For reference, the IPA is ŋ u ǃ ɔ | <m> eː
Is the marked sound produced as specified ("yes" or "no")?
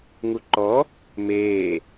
yes